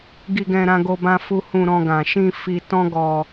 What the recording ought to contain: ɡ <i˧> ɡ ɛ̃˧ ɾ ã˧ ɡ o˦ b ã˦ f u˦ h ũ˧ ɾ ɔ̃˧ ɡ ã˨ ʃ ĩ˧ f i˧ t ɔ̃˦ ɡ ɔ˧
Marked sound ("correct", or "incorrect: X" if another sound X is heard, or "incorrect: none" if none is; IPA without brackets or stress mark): correct